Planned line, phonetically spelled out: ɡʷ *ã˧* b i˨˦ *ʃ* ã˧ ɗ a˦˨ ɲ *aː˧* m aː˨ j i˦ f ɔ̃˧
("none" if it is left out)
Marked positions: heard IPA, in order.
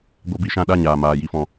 a˧, ʃ, aː˨

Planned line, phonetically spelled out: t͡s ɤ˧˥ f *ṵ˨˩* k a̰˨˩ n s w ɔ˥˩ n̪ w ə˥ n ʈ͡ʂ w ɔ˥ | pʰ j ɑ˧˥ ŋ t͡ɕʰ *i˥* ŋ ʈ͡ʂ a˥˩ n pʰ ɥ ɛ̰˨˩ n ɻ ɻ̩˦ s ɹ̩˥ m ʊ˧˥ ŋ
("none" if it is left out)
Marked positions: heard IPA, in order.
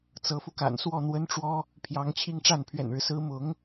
u˧, i˥

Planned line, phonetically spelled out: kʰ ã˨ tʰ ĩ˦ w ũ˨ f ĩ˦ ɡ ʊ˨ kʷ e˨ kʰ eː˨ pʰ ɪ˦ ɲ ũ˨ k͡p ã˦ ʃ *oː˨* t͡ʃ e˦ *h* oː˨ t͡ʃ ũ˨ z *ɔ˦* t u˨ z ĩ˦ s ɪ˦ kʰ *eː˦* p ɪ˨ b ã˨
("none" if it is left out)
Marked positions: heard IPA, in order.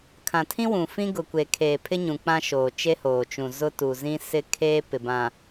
oː˨, h, ʊ˦, eː˦

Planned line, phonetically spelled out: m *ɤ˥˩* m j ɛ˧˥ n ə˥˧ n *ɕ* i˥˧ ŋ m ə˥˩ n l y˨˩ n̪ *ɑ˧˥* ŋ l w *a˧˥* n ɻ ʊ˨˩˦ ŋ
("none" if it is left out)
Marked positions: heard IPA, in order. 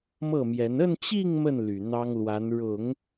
ɤ˥˩, t͡ɕ, ɑ˥, a˧˥

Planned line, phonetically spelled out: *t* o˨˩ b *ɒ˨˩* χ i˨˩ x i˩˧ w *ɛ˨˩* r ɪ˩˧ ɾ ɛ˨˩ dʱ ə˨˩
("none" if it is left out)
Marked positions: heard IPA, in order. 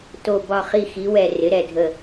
t, ɒ˨˩, ɛ˨˩

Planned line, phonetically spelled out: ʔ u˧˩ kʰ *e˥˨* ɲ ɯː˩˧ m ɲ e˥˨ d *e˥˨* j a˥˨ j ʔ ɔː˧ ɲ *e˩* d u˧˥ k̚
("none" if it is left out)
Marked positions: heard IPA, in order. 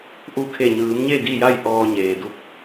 e˧˩, i˥˨, eː˩

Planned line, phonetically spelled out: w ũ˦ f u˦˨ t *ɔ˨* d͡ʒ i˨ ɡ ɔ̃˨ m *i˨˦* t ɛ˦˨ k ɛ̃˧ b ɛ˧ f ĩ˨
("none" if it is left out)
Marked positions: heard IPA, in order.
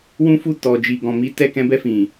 ɔ˨, i˨˦

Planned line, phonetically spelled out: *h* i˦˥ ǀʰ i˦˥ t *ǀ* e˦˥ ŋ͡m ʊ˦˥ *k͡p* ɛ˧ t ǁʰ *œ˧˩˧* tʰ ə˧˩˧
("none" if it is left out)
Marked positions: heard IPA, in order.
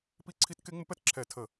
p, k, p, ɛ˧˩˧

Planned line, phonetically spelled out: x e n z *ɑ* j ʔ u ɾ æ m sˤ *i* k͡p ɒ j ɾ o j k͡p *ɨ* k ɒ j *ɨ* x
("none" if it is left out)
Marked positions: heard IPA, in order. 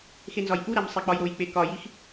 ɒ, e, e, i

